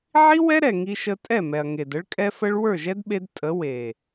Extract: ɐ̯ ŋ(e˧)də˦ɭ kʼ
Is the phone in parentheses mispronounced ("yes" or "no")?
yes